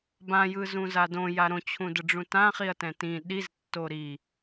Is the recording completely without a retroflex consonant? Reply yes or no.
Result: no